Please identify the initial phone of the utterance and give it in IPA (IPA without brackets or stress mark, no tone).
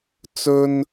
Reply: t͡s